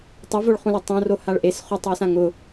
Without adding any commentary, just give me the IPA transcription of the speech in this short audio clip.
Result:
tˤ ʊ v o ɭ χ ũ l o tˤ õ r o h a ɭ ʔ e s χ u tˤ w ʊ s ã ŋ ʊ

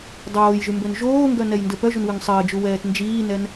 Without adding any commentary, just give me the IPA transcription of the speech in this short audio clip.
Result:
dˤ oː j ʒ y m b ø n ʒ oː ŋ ɡ œ n ɛ j n d ə p œ ʒ u n w y ŋ sˤ əː d͡ʒ u w ɛː t n d͡ʒ iː n ɛ n

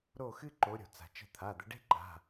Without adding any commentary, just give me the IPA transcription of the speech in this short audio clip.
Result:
ɾ o˦˨ x ɨ˦ ǃ o˨˦ ɾʲ o̤˩ t͡s a̤˩ t͡ʃ ə̤˦˨ t̪ʰ a˩˧˩ d̪ ə˨˦ ɖ e̤˦ ǃ a̤˩˧˩

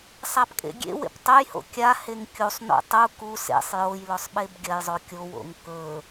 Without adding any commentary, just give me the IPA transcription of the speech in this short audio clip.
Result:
sˤ a p kʼ ḛ ɡʲ ḛ w ḛ p tˤ ɵ j h o̰ kʲ a h e ŋ kʲ u sˤ n o̰ tˤ u k u s ḛ sˤ j o j l ɵ sˤ ɓ e b ɡʲ ɐ j zˤ o kʲ o w o̰ ŋ k ɵ

